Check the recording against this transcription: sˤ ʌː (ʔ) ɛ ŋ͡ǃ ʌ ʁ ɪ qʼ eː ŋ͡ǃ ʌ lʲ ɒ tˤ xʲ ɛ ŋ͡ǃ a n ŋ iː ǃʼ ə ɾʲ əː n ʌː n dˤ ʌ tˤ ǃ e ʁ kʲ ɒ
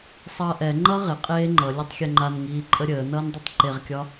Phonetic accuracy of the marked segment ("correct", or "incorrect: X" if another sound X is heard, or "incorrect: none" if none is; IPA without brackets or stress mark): correct